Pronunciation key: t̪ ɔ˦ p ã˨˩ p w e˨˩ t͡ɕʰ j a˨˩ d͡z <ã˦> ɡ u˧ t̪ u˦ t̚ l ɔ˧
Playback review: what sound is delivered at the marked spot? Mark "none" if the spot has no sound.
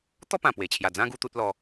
ã˦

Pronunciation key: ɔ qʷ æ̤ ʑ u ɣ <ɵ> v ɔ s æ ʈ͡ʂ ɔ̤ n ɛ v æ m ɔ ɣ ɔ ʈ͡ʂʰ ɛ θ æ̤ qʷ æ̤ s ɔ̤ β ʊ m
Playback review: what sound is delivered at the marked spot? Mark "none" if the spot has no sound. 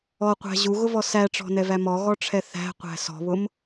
ʊ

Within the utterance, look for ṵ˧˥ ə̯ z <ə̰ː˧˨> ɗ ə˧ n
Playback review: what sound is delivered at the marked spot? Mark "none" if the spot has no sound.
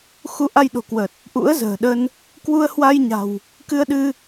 ə̤ː˨˩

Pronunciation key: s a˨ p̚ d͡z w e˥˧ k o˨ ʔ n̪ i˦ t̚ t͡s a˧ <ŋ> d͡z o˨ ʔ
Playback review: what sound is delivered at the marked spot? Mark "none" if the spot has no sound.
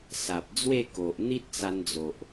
n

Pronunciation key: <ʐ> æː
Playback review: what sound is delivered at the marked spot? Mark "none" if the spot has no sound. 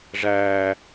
ʐ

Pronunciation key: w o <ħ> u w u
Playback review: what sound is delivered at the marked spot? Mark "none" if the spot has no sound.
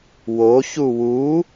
ç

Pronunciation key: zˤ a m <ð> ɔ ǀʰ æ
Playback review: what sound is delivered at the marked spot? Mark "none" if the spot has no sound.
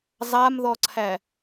ð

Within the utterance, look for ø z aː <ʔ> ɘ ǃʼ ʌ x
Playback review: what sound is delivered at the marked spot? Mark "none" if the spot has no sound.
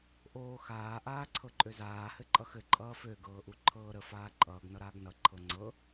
h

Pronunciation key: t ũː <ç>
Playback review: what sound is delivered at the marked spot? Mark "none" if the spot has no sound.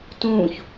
ç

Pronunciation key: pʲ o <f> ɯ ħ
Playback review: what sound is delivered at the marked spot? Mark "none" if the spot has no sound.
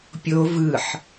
v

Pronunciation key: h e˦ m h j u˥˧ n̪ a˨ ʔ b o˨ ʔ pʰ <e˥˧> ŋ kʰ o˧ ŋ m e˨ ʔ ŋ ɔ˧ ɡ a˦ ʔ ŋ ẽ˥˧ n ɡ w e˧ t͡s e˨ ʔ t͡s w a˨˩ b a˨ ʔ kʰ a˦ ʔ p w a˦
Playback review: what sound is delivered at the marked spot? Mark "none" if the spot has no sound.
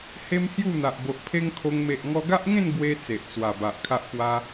e˦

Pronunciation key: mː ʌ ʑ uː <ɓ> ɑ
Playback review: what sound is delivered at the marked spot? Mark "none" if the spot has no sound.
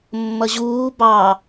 b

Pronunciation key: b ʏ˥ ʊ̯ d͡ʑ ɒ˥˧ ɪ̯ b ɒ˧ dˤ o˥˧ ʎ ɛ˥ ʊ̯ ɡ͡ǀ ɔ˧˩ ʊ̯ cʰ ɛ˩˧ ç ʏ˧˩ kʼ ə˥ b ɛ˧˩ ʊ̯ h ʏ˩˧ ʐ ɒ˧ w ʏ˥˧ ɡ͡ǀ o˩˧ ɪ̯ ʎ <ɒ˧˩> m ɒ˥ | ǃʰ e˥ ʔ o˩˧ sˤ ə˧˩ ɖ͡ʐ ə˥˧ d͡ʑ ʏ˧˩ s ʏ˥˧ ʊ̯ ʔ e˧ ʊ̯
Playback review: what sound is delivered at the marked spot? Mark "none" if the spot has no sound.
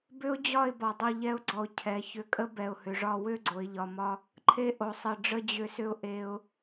ɒ˩˧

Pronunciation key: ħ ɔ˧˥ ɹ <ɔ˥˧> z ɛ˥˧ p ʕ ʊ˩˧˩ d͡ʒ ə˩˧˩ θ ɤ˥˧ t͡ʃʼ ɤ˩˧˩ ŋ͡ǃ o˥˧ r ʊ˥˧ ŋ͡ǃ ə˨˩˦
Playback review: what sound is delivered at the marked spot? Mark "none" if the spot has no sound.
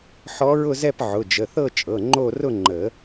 ʊ˥˧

